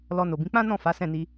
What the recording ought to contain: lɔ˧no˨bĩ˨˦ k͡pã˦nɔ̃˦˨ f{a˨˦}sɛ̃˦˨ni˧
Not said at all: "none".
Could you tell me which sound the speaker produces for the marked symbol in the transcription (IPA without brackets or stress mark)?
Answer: a˨˦